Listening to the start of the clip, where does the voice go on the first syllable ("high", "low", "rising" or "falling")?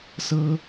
rising